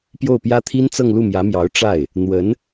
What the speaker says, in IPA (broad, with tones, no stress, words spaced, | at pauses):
pjo˥˩ʊ̯pjä˥t̪ʰi˥n t͡sɤ˥˧ŋlu˥˩mjä˧˥mjɑ˧˥ʊ̯ ʈ͡ʂa˥˩ɪ̯ | n̪wə˧˥n